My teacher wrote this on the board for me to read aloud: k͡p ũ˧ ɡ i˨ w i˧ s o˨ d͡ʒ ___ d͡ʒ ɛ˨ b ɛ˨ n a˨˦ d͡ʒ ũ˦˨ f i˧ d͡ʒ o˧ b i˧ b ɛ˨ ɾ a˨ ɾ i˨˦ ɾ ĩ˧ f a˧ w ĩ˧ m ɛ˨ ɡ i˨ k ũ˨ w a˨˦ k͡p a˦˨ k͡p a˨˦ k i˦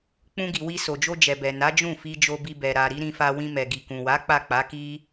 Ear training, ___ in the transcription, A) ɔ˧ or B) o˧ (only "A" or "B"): B